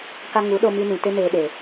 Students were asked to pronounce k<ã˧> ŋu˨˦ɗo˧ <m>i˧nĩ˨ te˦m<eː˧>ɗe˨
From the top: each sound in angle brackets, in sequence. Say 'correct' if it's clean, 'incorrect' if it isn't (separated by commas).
incorrect, correct, correct